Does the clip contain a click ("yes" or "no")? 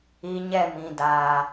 no